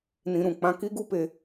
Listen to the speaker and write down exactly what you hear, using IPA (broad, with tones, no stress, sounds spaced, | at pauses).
n ĩ˧ ɾ ũ˨ k͡p ã˦ k i˦ ɡ u˦ p e˧